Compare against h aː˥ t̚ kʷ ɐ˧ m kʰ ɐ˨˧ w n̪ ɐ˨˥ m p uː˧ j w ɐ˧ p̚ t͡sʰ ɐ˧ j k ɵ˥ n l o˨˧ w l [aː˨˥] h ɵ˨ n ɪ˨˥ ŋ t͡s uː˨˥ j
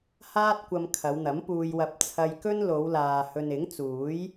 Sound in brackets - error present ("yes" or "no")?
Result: yes